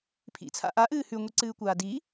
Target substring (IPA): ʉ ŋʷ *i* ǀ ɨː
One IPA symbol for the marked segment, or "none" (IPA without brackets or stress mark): i